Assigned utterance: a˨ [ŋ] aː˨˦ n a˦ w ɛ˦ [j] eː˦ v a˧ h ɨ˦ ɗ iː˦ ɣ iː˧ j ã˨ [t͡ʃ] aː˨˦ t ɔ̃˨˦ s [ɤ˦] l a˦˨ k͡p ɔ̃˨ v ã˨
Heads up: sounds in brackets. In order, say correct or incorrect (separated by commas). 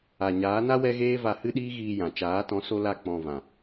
incorrect, incorrect, correct, incorrect